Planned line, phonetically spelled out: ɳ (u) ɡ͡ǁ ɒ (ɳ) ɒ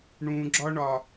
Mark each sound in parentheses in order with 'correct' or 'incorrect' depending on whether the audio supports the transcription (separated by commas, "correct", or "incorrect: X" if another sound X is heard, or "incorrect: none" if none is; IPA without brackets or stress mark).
incorrect: ũ, correct